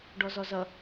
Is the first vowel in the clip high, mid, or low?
mid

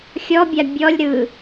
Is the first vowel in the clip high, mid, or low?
mid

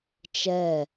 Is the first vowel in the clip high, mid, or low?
mid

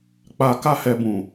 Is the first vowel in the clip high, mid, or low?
low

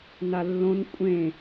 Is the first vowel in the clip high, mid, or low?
low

